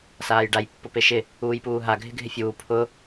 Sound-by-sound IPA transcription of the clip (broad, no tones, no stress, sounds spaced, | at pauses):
s aː j ɖ a j pː ʊ p e ʃ ɪ | uː j p uː ɦ a ɡʱ ɪ ɡʱ ɪ fʲ uː pʰ ʊ